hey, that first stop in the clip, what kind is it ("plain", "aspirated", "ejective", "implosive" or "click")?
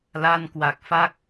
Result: plain